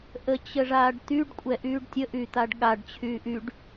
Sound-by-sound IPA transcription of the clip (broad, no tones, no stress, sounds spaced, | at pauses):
ʔ ə t͡ɕ ə ʐ aː ɖ t̪ y ɖ kʷʼ ɛ ʔ yː ɖ tʲ ə ʔ y t̪ a ɖ ɠ a ɖ t͡ɕʰ yː ʔ y ɖ